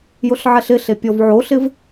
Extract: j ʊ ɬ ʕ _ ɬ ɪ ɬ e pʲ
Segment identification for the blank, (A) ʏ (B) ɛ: B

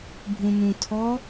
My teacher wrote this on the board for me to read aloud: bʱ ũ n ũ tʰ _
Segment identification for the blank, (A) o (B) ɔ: B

